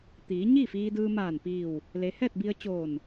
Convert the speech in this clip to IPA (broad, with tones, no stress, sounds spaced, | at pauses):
t̪ iː˩˧ ɲ iː˥˨ f iː˧ d ɯː˧ m aː˧˩ n p iː˧˩ w | l e˩˧ h ɛː˥˨ t̚ b i˧ ə̯ t͡ɕ oː˧˩ n